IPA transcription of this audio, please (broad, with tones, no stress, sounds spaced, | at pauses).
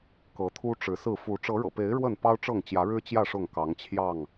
k ɤ˨˦ t̪ʰ u˦ ʈ͡ʂ ɻ̩˨˦ s ɹ̩˥˨ f u˨˦ ʈ͡ʂ ɤ˨˦ ɻ ɤ̰˨˩ p e˨˦ ɪ̯ ɻ w ə˥˨ n p ɑ˦ ʊ̯ ʈ͡ʂ ɤ˥˨ ŋ t͡ɕ j ä˨˦ ɻ ɻ̩˦ t͡ɕ j ä˥˨ ʂ ʊ˥˨ ŋ k ɑ˨˦ ŋ t͡ɕʰ j ɑ˥˨ ŋ